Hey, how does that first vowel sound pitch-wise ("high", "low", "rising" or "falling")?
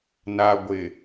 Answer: low